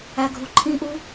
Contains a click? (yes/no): yes